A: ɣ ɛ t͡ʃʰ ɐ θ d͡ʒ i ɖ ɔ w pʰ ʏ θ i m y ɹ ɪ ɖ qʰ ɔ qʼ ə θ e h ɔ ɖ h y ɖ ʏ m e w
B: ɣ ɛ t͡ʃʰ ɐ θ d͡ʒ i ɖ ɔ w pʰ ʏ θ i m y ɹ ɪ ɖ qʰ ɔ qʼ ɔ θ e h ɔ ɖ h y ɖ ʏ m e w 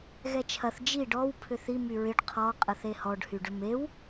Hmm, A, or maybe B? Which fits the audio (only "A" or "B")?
A